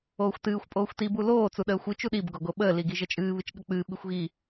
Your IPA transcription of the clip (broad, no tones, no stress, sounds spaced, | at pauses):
oː xʷ t ɨː xʷ pʼ oː xʷ t i b u l oː t͡s u ɗ əː xʷ ɨ t͡ʃ u ɗ i b ɡ o ɡ o ɓ əː l i ɡ i ʒ ə t͡ʃʼ ɨː β ɨ t͡ʃ ɠ ə k͡p ɨː ɓ i xʷ ɣ i